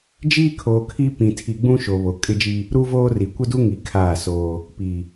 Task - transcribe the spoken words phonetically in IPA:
d͡ʒiː˦kʰoː˨ kʰi˦ pĩ˨ tʰi˨ɡ͡bũ˦ʃo˨ βo˨kʼɪ˦d͡ʒi˦ | ɾu˦voː˦ri˨ kʷɪ˦du˦ŋi˨ kʰaː˦˨soː˦ | pi˨

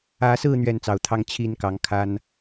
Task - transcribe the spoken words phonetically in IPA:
ä˨˦sɹ̩˥˨ n̪ɥɛ˥˨nt͡sɑ˨˩ʊ̯t̪ʰɑ˦ŋ t͡ɕʰi˥˨nkɑ˨˦ŋkʰa˦n

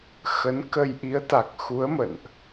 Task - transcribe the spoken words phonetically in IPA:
xə˨˦nkə˧j ʔi˨˦ə̯t̪a˨˩k̚xu˨˦ə̯mə̰˧˨nʔ

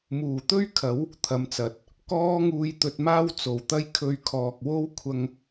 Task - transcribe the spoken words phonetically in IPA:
muː˨˩t̪ɵ˥ɥkʰɐ˨˥w | t̪ʰɐ˨˥mt͡sɐ˨˥t̚ | kɔː˥ŋuː˧j t̪ɵ˧t̚maː˥w t͡so˨˩wt̪ɐ˥j kʰɵ˧ɥkʰɔː˨k̚ wo˥wkʷʰɐ˧ŋ

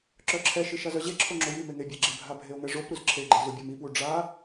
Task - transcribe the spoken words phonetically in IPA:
ǁœǁʰɛʃi ʃazœʑeǁʰo ŋ͡ǁojime ŋebʲɛɡ͡ǁɪbʱa bʱeo̯ŋɛʐopɾuz ǁʰeɡ͡ǃe zubʲamipwu ɖ͡ʐa

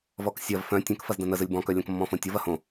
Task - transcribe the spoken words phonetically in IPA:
vɔksʲɐv fœ̃ tʲœ̃k fɐzdɐ̃nəzəlʲ bɔ̃kœ lʲɐ̃kmːɔ̃fõtʲov ɐhõ

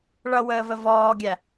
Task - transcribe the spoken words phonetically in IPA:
ɭʌwəːvə vɔːɡʲæ

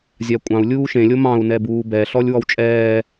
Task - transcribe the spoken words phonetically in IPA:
zʲakʷʼɑ̃u̯ lʲuːʃẽlʲo mɑ̃u̯nɛbuː bɛɬɔlʲ wɔwt͡ʃʼɛː

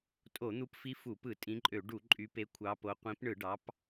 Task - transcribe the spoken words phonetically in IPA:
tʼo˧˩˧ n̪u˨˦pfi˨˦ fu˧˩˧pɯ˧˩˧ tʼĩ˨˦ǃʼø˧˩˧ ɖu˧˩˧ǃʼy˨˦pe˨˦ kʷʰɑ˨˦po˨˦ qʷĩ˨˦pɳɯ˧˩˧ɖɑ˨˦p

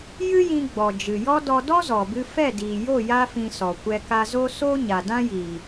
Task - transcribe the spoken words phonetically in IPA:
jɨ˦jĩ˧ɡ͡bɔ˨ d͡ʒɨ˨jɔ˦ dɔ˧dɔ˦zɔ˨bɨ˧ fɛ˦˨diː˨jo˦˨ ja˦fĩ˧sɔ˨ kʷɛ˧ka˧zo˦ so˦ ɲa˨dã˦jiː˨

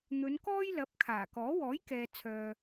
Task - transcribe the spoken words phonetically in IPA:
n̪ɵ˨˧nkɔː˥jlɐ˨˥p̚ kʰaː˨˩kɔː˨˥ wɔː˨˥jkɛː˨t͡sʰœː˨

